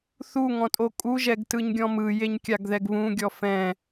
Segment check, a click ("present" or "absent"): absent